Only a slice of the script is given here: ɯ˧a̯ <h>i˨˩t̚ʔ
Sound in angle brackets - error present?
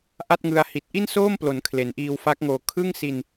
no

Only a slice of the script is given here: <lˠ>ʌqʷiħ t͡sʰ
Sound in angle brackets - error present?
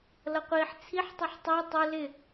yes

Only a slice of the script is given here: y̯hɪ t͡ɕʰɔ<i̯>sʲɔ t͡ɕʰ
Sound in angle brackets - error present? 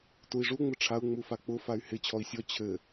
no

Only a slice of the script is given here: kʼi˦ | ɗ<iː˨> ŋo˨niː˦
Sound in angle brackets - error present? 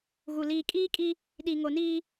yes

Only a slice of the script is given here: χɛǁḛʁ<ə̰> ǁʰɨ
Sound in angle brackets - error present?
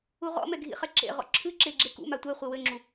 yes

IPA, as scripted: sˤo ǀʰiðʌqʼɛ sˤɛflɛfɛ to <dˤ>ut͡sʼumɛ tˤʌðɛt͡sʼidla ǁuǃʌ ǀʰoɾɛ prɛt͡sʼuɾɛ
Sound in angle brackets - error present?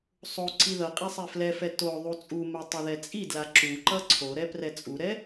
yes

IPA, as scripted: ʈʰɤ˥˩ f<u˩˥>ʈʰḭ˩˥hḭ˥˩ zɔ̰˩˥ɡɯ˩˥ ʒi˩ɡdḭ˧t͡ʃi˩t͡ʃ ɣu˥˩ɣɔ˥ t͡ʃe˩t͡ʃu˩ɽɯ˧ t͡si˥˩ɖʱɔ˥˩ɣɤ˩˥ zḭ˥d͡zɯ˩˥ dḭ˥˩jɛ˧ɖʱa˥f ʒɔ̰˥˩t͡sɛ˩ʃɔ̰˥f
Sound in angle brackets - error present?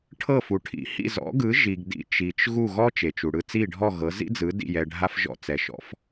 yes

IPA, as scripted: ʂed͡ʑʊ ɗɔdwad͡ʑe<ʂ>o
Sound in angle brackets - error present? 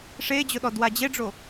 yes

